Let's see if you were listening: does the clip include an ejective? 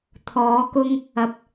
no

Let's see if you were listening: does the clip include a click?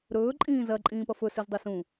yes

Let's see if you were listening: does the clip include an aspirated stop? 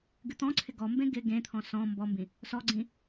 yes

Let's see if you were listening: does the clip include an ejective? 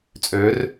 yes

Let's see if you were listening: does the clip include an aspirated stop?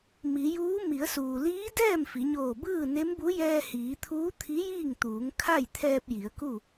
yes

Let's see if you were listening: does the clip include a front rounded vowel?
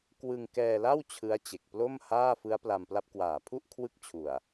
no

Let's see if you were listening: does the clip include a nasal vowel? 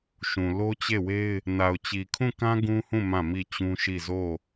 yes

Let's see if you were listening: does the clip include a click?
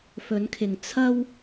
no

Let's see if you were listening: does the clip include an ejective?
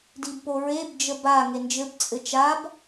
yes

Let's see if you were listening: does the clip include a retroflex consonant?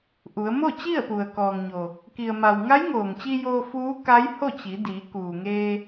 no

